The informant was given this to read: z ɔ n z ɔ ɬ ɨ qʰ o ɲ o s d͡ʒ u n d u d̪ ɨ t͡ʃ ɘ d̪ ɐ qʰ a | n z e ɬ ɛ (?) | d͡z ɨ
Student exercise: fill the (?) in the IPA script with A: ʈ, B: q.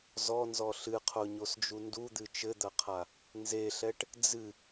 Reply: A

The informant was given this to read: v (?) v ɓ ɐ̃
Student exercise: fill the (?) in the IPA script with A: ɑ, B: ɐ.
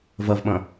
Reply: B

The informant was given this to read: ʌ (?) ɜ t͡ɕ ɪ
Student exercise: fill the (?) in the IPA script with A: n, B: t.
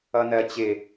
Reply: A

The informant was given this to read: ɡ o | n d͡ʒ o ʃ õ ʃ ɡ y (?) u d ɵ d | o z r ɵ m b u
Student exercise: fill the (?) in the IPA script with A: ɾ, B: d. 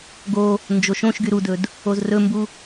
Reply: A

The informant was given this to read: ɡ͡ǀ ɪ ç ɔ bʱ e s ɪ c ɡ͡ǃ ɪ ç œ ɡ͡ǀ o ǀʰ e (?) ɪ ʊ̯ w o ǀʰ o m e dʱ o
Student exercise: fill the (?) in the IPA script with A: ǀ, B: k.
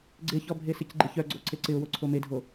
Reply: A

